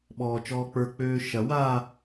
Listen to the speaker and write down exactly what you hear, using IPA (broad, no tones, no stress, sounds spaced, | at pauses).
ɓ ɔː t͡ʃ ɔː k͡p ə˞ k͡p øː ʃ ɐ w a